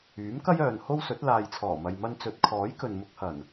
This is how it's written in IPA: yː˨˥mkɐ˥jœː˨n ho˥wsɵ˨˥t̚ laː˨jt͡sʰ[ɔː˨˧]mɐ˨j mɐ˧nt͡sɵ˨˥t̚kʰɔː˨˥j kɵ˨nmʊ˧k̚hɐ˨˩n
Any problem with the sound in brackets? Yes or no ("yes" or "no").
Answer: yes